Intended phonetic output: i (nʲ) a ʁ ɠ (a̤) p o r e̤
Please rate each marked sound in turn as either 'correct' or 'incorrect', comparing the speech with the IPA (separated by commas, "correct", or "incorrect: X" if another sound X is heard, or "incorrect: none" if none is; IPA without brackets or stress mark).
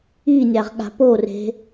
correct, correct